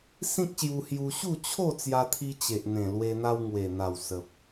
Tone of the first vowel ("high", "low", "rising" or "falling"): high